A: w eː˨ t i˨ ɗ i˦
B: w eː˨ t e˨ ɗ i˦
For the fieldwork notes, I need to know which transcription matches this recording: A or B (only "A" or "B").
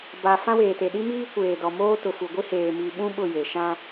B